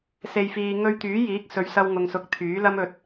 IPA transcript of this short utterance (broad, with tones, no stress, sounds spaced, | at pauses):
s e˨ j f iː˨ ŋ ɵ˧ ɥ t̪ yː˨˥ j iː˨˥ k̚ s ɵ˨˧ ɥ s ɐ˧ w ŋ ʊ˨ ŋ s ʊ˨˥ k̚ t̪ʰ yː˨˥ l ɐ˥ m ɵ˨ t̚